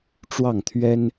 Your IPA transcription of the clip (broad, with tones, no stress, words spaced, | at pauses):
ʈ͡ʂwɑ˥˩ŋt̪ʰɥɛ˥n